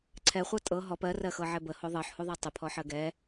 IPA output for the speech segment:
ǀʰɛχʷɤ tʼɤ ɦɔp ɜrɜxɤʕɛ bəho ðˤɤħhuðˤɜ tˤəpʰɔħɜ ɡɛ

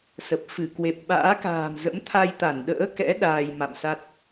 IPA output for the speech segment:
sə˨˩p̚fɨ˧˩ kwe˨˩p̚ ɓa̰ː˧˥ka̤ː˨˩mzə̰˧˥m t̪ʰa˧jt̪a˧˩nɗə̰ː˧˥kɛ̰˧˥ ɗaː˧jma̰˧˨msa˦˥t̚

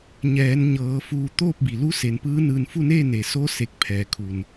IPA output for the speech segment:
ɲɛː˩˧nɲɤː˩˧ fuː˧˩ t̪oː˥˨p̚bi˩ lu˧˥se˩˧npɯː˧˥ nɯː˧˩nfu˥˨neː˥˨ ne˩so˧˥ se˧˩k̚pʰɛː˩kʰu˩n

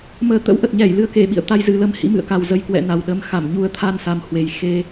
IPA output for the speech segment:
məː˨˩t̪ə̰˧˥wʔə˨˩t̚ɲɛ˧˩j lɨ˨˩ə̯ke˧˩ɓḭ˧˨ə̯ t̪a˧jzɨ˨˩lə˧m hḭ˧˥mɨ̰˧˨ə̯ka˨˩w zə˨˩jkwɛ̰˧˨ na˨˩wɗəː˨˦m xa˧˩m ɲu˧ə̯ t̪ʰa˧nsa˨˩m hwe˨˩j xe˧

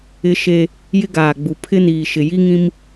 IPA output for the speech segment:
ɪ˦ʃe˦ | jɪ˦ɡaː˨ɡ͡bu˨ pʰɪ˦niː˨ ʃɪ˨ji˦ŋĩ˦m

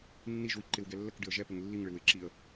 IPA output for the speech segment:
nːiʒwi ǃɪwɡɛ lːəkɖɪə̯ ʒɛpɪŋ lːiŋɭɪw ɪ ǁiə̯

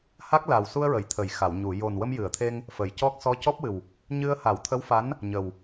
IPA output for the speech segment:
ha˦˥k̚ la˨˩wsu˧ə̯ɹə˨˩˨j t̪ʰə˨˩˨jxa˨˩˨wɲu˨˩˨ jo˨˩nwə˧mjɨ˨˩˨ə̯t̪ʰe˧ŋ | fə˨˩˨jcɔ˦˥k̚ sɔ˧˥cɔ˦˥p̚wɨ˨˩w | ɲɨ˧ə̯ ha˨˩˦wt̪ʰə˧˥wfa˧˥n | ɲə˨˩w

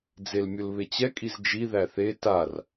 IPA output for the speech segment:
d͡zelmʲʊlβet͡ɕɛ kʼizd͡ʒi ðæθe tar

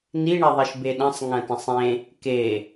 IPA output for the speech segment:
niɳeðˤiʃ beɗɐ̃sˤ ŋɐ̃tɐ̃sˤẽ | ke

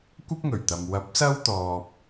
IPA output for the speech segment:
kʷɐ˥p̚ŋɵ˨˩ɥt̪ɐ˨m wɐ˨˥p̚sɐ˥wt̪ɔː˨p̚

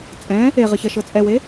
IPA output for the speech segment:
t͡sʼɛ̃ | eʁəçɐʃɤ t͡sʼɛwe

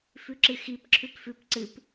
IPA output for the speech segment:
fʉǁɨxip ǁʰʉpfʉp ǀɨp

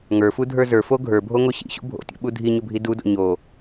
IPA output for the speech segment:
ŋə˞fudʱə˞ zə˞fo ɡʱə˞bʱoŋo ɕḭɕṵ bʱo̰tʲo̰ɓu dʱiɲʊbʱi dudo̰ ɲo

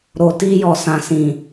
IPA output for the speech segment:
ɾo˨ti˧jɔ˨sã˨ sĩ˨

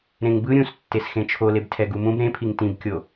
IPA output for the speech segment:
ɾẽŋbɯ ɾʲũstːes xẽt͡ʃʰoleb tʰɛɡumũb ɾẽpʰiŋ tĩbkʲo

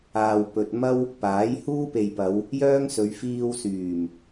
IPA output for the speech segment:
aː˨wpɵ˨t̚ mɐ˥w | paː˨˥jhuː˥pe˨jpɐ˨˧w | jœː˥ŋsɵ˨˧ɥ fiː˧wsyː˨˩m

